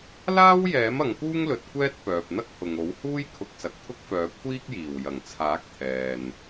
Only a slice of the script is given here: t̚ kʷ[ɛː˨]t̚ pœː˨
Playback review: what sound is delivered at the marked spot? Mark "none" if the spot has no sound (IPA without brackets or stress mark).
ɛː˥